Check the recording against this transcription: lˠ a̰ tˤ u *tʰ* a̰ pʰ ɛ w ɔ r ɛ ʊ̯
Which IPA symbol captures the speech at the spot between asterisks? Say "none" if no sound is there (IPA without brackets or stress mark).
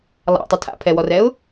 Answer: tʰ